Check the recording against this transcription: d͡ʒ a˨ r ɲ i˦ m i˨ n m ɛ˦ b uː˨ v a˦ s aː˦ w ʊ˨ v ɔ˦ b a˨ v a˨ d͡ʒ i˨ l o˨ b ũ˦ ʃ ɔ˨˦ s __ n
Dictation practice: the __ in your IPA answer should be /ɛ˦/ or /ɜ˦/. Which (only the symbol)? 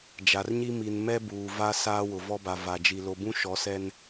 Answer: ɛ˦